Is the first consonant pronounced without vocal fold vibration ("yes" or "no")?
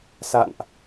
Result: yes